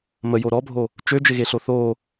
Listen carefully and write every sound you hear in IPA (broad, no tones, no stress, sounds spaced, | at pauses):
m ə j o ɾ ɔ bʱ o | t͡ʃ ø d͡ʒ ɪ ɣ e ɬ o θ o